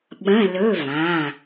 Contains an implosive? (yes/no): yes